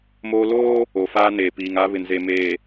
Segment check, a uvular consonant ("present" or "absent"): absent